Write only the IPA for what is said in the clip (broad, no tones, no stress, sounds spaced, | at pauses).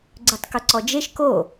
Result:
ɡ͡ǀ ʉ tˤ k ʊ ǀ ɔ d͡ʒ e ʃ k o